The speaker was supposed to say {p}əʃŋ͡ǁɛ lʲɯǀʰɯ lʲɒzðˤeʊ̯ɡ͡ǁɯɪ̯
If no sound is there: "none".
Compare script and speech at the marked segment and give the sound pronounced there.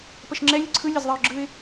p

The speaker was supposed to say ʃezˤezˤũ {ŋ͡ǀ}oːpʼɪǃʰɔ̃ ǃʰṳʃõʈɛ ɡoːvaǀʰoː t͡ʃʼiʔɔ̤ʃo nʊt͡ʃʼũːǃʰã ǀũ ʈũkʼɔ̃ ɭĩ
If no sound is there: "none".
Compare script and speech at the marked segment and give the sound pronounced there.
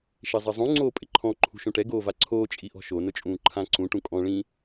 ŋ͡ǀ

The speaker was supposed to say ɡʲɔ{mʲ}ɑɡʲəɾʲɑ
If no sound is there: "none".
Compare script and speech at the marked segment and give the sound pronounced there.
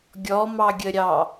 m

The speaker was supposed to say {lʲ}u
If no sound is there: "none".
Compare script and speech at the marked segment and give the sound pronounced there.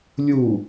lʲ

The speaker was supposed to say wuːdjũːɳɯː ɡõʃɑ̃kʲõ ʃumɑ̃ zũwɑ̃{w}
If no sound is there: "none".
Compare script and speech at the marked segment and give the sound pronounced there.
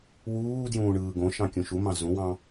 none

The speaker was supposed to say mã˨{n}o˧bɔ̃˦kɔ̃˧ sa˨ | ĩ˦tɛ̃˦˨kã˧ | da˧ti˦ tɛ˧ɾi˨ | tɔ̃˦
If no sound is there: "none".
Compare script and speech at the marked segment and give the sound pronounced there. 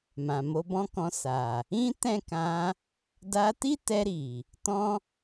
m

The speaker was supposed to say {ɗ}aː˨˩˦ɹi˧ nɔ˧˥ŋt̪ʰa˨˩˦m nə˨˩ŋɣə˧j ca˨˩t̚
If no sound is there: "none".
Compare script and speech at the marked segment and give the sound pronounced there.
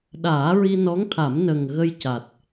ɗ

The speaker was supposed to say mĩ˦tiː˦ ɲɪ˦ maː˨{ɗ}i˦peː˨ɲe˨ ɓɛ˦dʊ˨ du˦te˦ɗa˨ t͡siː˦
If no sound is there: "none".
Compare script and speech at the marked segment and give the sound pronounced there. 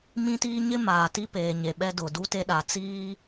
t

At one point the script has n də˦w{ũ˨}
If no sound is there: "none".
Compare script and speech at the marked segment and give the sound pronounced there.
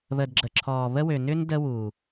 u˨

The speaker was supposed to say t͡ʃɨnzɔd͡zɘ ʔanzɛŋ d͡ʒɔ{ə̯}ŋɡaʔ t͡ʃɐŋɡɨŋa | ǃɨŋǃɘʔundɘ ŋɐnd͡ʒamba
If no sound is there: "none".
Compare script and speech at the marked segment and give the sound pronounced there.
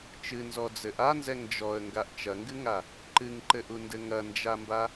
ə̯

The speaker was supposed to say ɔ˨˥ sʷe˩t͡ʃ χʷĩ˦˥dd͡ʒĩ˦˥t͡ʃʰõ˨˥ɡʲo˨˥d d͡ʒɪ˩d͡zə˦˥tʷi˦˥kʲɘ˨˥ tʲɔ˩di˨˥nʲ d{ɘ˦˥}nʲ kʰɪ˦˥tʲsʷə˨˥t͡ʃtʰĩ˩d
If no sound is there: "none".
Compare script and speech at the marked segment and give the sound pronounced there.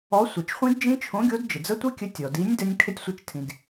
ɘ˦˥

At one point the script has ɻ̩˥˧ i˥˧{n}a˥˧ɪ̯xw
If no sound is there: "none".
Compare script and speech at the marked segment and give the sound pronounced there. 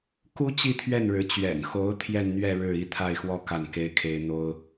t̪ʰ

